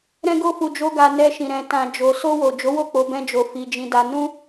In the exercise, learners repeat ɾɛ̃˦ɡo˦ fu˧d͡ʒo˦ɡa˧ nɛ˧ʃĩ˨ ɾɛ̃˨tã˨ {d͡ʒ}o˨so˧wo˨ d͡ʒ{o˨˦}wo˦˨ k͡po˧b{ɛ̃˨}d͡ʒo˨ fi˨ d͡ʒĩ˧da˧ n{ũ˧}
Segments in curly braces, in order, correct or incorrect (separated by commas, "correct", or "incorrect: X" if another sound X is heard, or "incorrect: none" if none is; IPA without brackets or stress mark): correct, correct, incorrect: ɛ̃˧, incorrect: ũ˦